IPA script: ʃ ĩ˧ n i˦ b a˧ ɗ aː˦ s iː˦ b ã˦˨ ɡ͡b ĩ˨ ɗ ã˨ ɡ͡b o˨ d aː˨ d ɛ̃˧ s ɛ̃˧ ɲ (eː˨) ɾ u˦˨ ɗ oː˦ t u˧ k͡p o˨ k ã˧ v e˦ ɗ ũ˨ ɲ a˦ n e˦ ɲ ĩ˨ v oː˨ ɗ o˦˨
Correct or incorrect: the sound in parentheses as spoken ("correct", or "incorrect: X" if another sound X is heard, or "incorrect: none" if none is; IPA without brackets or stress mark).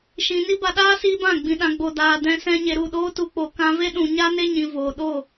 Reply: incorrect: e˨